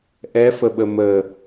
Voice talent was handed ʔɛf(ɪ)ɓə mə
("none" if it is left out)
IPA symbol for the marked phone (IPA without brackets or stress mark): ə